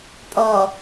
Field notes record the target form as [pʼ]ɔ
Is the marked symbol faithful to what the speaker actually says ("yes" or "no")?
yes